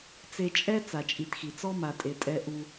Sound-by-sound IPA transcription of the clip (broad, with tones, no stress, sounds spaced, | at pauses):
t͡s e˨ t͡ʃʼ ɛ˦ t͡s a˨ t͡ʃʼ i˨ t x i˨ t͡s ɔ˦ m a˨ tʼ e˨ tʼ ɛ˦ ʔ u˦